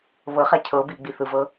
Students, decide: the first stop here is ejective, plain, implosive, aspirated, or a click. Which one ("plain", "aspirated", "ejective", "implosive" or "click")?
aspirated